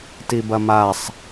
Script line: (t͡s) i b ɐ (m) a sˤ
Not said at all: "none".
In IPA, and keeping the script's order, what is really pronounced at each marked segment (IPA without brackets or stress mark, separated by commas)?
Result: t, m